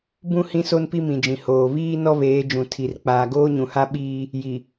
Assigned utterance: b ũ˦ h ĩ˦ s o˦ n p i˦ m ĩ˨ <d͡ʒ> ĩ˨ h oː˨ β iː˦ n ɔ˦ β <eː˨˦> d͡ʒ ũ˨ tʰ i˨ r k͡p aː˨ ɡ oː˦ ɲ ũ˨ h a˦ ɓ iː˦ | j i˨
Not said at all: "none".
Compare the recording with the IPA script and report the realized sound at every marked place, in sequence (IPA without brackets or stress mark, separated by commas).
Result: d͡ʒ, eː˨˦